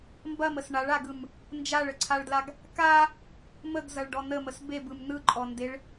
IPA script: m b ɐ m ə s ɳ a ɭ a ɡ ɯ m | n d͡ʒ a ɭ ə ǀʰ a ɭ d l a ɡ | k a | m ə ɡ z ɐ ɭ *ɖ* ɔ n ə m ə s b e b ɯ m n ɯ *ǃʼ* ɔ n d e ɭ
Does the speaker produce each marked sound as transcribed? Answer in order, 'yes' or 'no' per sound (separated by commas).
yes, yes